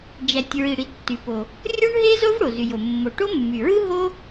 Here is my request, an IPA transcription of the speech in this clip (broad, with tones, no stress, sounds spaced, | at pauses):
d͡ʒ æ˩ tʲ ɹ i˩ ɽ i˩ tː y˩ p o˩ | rʲ o˥ ɳ ɦ e˥ z o˥ v ɽ o˩ z y˩ j o˩ mː o˩ ʈ o˥ mː y˩ ɹ ɯ˥ ɦ o˥